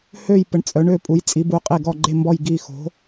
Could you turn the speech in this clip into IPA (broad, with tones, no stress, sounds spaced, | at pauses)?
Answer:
h ø˦˨ j p ə˨˦ ɳ t͡sʼ œ˨˦ ɳ ø˦˨ pʼ u˨˦ j t͡sʼ i˨˦ b u˨˦ qʼ e˦˨ ɡ ɔ˦˨ ɡ͡ǃ e˦˨ m b ɔ˦˨ j ɡ i˦˨ x o̤˨˦